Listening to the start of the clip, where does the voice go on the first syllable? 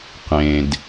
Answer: low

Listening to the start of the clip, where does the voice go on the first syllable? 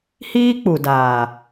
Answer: high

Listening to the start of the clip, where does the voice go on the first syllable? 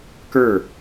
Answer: falling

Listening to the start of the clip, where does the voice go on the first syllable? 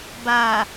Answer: low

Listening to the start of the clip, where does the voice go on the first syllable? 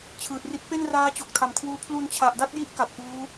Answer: low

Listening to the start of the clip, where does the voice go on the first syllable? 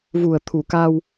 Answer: low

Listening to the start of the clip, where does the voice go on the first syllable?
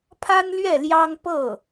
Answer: high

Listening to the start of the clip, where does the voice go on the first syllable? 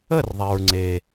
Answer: falling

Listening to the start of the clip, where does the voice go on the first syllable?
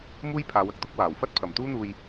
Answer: high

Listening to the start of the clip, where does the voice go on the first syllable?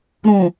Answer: low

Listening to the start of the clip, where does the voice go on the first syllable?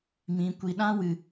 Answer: low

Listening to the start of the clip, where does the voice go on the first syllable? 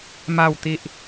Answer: falling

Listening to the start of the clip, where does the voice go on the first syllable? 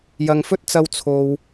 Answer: low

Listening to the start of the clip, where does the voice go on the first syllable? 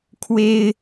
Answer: high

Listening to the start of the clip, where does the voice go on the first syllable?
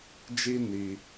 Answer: high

